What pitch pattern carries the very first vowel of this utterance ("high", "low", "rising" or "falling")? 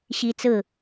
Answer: high